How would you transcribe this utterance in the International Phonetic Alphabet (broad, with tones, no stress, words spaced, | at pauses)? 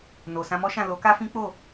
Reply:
no˨sã˧mɔ˦ʃã˦˨ lo˨˦ka˦fĩ˦ k͡po˦˨